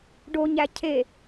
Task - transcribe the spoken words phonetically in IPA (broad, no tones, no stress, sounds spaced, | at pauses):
ɖ o ɲ æ cʰ e